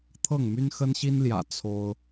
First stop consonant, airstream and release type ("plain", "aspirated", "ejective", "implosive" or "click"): aspirated